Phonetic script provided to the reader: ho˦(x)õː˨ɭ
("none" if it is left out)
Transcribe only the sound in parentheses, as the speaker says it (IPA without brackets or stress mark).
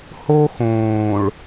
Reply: x